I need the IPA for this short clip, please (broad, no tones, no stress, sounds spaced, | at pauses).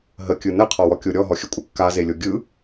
ɦ ə kʲ ɯ n ə qʰ ɔ w ɔ kʲ o ɾʲ ɔ ɦ ɔ xʲ ə kʷʼ ə kː a z e lʲ o ɡʲ ɯ